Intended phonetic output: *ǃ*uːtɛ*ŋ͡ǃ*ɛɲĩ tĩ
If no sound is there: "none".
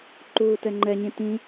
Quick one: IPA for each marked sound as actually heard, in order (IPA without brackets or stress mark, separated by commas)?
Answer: ǃ, ŋ͡ǃ